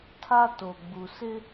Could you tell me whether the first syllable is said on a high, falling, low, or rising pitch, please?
high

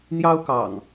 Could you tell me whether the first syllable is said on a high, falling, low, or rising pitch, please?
high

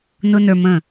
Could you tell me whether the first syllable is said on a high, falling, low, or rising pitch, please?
high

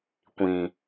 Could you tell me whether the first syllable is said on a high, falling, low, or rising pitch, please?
low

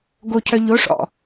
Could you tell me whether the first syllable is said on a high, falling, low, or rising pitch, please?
high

